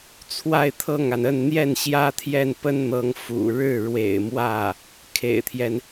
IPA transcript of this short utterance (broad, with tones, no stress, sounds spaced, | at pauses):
t͡sʰ w a˥˧ ɪ̯ t̪ʰ ɤ˥˩ ŋ a˩ n ə˥˧ n n̪ j ɛ˥˩ n ɕ j ä˥ t̪ʰ j ɛ˥˩ n p ə˥ n n̪ ɤ˧˥ ŋ f ṵ˨˩ ɻ ɻ̩˥˩ ɻ w ḛ˨˩ ɪ̯ m w ä˥˩ | kʰ ḛ˨˩ ɪ̯ t̪ʰ j ɛ˦ n